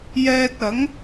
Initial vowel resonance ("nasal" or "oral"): oral